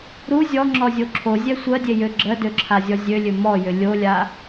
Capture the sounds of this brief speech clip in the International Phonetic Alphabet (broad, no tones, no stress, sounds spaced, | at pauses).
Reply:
ɾ u zʲ ɔ ŋ͡ǁ ɔ zʲ o ǁʰ o zʲ ɛ sʷ ɜ dʲ e j ø ɡ͡ǁ ɜ d ø ǁʰ a zʲ ɔ zʲ ø lʲ ø m ɔ j ʏ lʲ o lʲ a